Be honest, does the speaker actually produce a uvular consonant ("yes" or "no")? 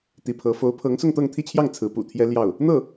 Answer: no